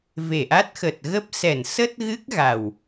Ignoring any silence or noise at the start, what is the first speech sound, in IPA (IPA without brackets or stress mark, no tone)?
v